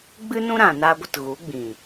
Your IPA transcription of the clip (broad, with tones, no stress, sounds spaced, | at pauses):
ɡ͡b ɨ˦ n ũ˦ ɾ ã˨ n a˦ ɡʷ ə˧ t ɣ u˨˦ ɡ͡b ĩ˨